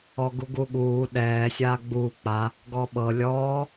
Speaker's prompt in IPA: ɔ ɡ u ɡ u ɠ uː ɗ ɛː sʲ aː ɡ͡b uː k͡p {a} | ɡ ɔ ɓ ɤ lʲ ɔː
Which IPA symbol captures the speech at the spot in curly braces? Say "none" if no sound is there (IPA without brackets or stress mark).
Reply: a